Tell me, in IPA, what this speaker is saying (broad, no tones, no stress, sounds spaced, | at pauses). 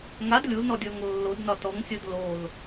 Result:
ŋ a d lʲ u l n ɔ dʲ ɔ ŋ lː o d n ɒ t ɔ ŋ sʲ o d l o l